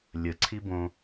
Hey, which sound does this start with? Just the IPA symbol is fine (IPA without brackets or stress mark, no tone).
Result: lʲ